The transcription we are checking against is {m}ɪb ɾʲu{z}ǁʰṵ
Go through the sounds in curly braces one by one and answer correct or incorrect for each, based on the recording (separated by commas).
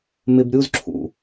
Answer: correct, correct